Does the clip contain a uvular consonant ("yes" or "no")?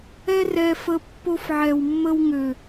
no